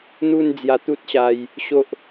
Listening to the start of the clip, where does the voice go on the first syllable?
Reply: falling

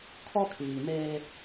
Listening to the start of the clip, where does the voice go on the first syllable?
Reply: high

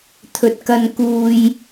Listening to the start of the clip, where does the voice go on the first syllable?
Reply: low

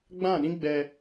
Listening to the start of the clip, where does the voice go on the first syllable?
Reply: falling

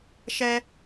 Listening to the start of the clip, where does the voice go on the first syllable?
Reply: high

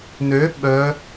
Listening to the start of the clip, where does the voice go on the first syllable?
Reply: rising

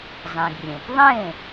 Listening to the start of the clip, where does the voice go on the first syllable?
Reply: low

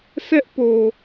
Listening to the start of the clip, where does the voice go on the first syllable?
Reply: high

